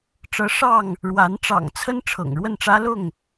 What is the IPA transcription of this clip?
ʈ͡ʂɤ˨˦ ʂɑ˥˨ŋ | ɻwa˨˦n ʈ͡ʂɑ̰˨˩ŋt͡sʰə˦n ʈ͡ʂʰɤ̰˨˩ŋɻwə˥˨nʈ͡ʂä˦ lʊ˥˨ŋ

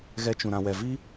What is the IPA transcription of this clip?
ɣɛ˧t͡ʃũ˨ ɾã˨wɛ˨ vi˧

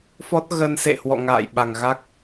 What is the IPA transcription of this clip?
fɔ˦˥t̚ ɣə˧n sḛ˧˨hwɔ̰˧˨ ŋa̰ː˧˨jɓa˨˩ŋ ɣa˦˥k̚

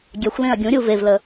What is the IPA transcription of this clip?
ɡʲɛxʷlẽɐ̯ ɡʲũɾʲu vevlə

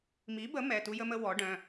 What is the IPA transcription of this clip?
mi˩˥bə˩˥ mɛ˩˧˩tu˦ jə˦mə˦wɔ˩˥ ɖœ̃˩˧˩

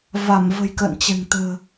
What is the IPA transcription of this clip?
va˧˩mvə̤˨˩j kə̰ː˧˨nt͡ɕɛ̤˨˩ŋ t̪ə̤ː˨˩

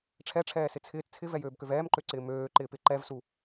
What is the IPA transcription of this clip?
ʈ͡ʂʰɛʈ͡ʂʰɛːsɪ t͡sʰɪːt t͡sʰɪvɛjøːbkøv ɛːmǃøǀɪː møːǃɪːpɪ ǃɛvsu

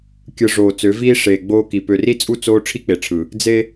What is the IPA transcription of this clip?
kʲɯ˨ ʐoː˨t͡sø˨˦viː˦ ʂeː˨ɡ͡boː˦ki˨ pø˨ri˦t͡sʼu˦ t͡soː˦ ʈ͡ʂʰi˦k͡pe˨ʈ͡ʂʰɯ˨ | d͡ze˦

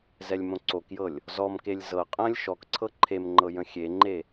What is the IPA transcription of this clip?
zɛlʲmõǀokjɤlʲ | zɔmkelʲ zɤqʼə̃ːlʲ ʃɔkǀʰɤ ǃʰemŋ͡ǃɤ jə̃xʲeŋ͡ǃe

